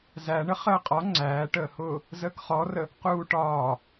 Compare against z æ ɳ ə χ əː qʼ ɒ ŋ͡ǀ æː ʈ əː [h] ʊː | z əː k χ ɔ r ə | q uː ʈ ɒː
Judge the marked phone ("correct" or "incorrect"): correct